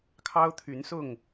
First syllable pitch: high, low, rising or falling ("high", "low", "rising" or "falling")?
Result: high